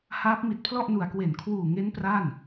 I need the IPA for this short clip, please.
haː˦˥p̚mi˨˩t̚pʰlɔ˥˩ʔnu˨˩a̯ kwe˩˦nkʰwuː˨˩ŋe˦˥n pra˥˩n

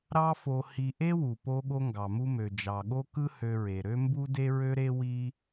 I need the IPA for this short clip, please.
ɾɑ˥fo˧hi˧ ʔe˥wu˩po˧ ɠo˥ŋɡɑ˩mu˥mø˩ d͡ʒɑ˩ɠo˥kɯ˥ hø˧ɹe˩ɾø˥ mbu˥de˥ɹø˥ɾe˥ wi˥

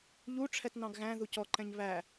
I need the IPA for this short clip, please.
ʎu ʈ͡ʂʰɛtnɑ̃ɡɣæ̃ ðucɔǃɛ̃ɲ βæ

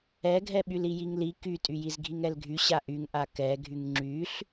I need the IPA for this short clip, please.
ɛɡʱɛɓyl ijiŋli kytʼyjiz ɡʱiŋɛlɡʱy ɕaʔyŋʔa kɛɡʱyŋ ŋ͡ǁyɬ

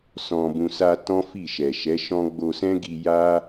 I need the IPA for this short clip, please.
sɔ̃˨bũ˨sa˧ tɔ̃˦fi˦˨ ʃɛ˨ʃɛ˨˦ʃɔ̃˦ ɡ͡bo˧sɛ̃˦ɡi˧ ja˦

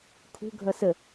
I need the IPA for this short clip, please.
kʰṳɡʱʌ sə

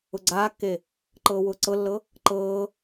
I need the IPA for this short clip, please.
ʊɡ͡ǀaːkːe | ǃɤːwʊːǀɤlːɤ | ǃɤː

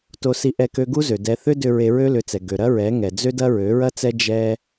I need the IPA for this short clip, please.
to˧si˧ʔɛ˧ kø˧ ɡu˦zø˨ dɛ˧ θʏ˦dʏ˧ ɹe˧ɹø˦lʏ˨˦t͡sɛ˨ ɡø˨ɾɐ˦ɹɛ˨˦ ŋɛ˨d͡zø˦dɐ˦ ɹø˨˦ɹɐ˦t͡sɛ˦ d͡ʒɛ˦

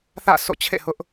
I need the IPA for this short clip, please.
θä̰˦˨ sʰo̰˦˨t͡ɕʰḛ˦˨hʊ˦ʔ

